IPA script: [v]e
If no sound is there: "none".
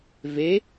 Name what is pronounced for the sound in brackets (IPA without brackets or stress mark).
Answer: v